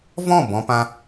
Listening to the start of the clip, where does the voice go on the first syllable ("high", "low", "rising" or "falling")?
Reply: falling